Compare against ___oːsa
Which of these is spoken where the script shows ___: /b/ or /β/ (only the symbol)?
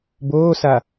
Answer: b